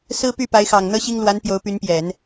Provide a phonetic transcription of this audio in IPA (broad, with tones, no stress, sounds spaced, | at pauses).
s ɹ̩˥ p y˥˩ p a˧˥ ɪ̯ x ɑ˨˩ ŋ n̪ ɤ˥ ɕ i˥ ŋ l w a˧˥ n p j o˧˥ ʊ̯ p y˧˥ n p j ɛ˨˩˦ n